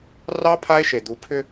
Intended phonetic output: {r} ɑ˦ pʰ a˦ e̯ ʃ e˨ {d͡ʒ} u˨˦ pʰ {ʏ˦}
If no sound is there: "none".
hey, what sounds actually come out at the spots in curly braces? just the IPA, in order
r, d̪, ʏ˦

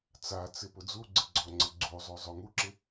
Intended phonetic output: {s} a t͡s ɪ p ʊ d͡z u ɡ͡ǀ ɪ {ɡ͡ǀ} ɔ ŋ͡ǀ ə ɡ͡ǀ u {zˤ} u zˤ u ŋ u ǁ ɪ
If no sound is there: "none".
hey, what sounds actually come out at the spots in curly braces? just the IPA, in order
t͡s, ɡ͡ǀ, zˤ

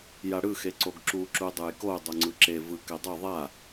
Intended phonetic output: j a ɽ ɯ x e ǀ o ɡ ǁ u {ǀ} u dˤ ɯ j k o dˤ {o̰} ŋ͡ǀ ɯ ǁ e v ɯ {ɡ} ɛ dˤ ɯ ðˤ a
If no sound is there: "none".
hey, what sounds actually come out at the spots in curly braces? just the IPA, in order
ǁ, o, k

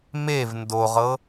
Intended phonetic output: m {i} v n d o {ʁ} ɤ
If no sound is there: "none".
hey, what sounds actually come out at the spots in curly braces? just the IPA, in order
e, ʁ

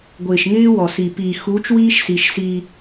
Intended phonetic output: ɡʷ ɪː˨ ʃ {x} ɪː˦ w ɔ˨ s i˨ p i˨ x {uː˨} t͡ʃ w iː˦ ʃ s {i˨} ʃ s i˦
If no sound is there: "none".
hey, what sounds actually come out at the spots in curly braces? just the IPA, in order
ŋ, uː˨˦, i˨

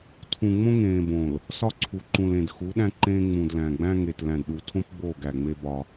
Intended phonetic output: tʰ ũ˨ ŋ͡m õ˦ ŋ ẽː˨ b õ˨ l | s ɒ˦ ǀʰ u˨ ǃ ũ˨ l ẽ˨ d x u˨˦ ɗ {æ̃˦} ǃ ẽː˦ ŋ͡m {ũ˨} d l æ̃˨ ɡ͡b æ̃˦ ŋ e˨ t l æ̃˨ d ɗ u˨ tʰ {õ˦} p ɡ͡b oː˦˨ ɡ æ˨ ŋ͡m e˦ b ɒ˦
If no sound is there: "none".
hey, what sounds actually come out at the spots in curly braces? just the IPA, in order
æ̃˦, ũ˨, õ˦

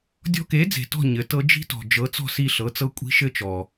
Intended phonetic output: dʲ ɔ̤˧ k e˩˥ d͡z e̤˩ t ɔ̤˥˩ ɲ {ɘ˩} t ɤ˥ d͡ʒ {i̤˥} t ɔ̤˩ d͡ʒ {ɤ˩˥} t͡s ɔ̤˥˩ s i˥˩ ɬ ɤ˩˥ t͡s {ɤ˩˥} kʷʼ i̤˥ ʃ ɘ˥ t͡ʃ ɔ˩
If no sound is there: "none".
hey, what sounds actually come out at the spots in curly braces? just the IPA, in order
ɘ˩, i̤˥, ɤ˩˥, ɤ˥

